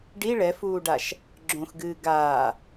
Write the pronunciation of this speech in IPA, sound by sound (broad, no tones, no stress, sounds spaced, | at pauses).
ɖ i ɭ ɛ f uː ɖ a ʃ | ɡ͡ǁ õ x ɡ ɨː ɡ aː